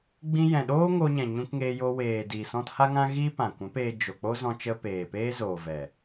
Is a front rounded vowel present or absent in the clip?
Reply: absent